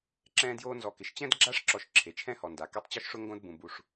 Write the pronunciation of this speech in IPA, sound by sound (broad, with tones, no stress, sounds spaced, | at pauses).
ǁ ɛ̃ː˦ d j oː˦ n z ɔ˨ k ɪ˩ ʃ t͡ɕ ɛ̃˥ d ɡ͡ǁ a˥ ʂ ǁ ɔ˨ ʃ ǁʰ e˩ t͡ʃʰ ɛ̃˦ h ɔ˩ n d a˩ k ɛ˦ tˤ t͡ɕ ɔ˥ ʃ ʂ ʊ˥ ŋ ɡ õ˥ d b ũ˨ b u˨ ʂ